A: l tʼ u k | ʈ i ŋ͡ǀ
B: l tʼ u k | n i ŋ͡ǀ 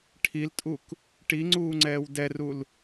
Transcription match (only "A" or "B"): A